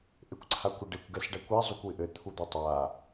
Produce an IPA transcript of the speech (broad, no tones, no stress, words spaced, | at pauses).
ʔekʷǀʰakʷɘɖekʷ ɡɛsɖakʷɛ zˤukʷwɪʔɘ t̪ʰud̪utˤa